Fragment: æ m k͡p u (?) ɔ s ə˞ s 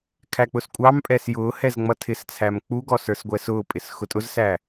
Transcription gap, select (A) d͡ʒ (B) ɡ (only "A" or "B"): B